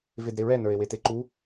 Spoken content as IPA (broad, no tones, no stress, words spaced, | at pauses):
vedɾeɹɛ nə˞e̯weteǃu